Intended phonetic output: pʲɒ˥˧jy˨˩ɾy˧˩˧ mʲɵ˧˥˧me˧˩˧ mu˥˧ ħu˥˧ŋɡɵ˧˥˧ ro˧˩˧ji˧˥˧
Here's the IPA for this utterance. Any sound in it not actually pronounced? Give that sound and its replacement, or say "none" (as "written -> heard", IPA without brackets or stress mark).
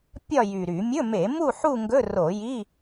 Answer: none